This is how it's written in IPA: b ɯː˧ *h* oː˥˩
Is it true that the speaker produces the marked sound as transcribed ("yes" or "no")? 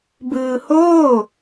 yes